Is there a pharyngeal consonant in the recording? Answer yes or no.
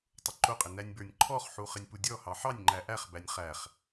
yes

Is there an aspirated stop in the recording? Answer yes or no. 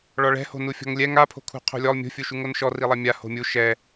yes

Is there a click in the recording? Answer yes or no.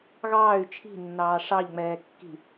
no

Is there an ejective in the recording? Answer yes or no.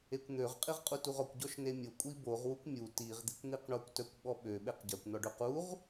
yes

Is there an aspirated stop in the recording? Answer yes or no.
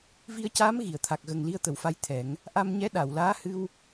yes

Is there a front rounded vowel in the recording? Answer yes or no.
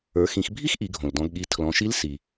no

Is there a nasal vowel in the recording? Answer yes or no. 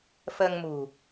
no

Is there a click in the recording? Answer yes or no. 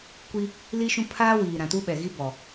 no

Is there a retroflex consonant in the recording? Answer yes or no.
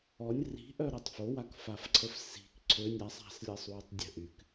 no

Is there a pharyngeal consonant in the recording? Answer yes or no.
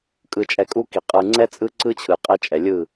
no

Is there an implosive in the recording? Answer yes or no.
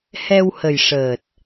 no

